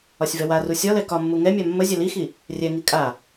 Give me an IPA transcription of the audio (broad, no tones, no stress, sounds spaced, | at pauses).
ɒ sʲ v ɛ w a r u sʲ ɒ l ɛ k ɒ mː u ŋ ɛ mʲ a mː ə zʲ ɛ l i x i | rʲ ɛ ŋ i kʼ a